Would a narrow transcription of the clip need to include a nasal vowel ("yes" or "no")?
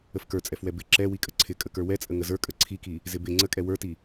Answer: no